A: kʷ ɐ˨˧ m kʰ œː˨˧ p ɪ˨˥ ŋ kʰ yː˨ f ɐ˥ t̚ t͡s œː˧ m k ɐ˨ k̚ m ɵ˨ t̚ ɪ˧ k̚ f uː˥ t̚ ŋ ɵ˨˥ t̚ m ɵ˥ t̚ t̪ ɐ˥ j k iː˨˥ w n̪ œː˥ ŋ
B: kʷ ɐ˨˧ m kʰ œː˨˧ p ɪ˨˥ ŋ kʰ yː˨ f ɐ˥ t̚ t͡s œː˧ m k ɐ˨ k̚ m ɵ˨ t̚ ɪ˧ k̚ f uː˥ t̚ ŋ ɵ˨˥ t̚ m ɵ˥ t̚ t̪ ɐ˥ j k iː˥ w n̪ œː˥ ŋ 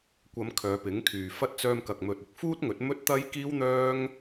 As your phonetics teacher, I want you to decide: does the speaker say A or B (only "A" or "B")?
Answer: B